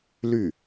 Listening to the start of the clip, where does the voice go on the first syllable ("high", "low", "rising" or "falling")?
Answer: falling